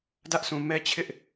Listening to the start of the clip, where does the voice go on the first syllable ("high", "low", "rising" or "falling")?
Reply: high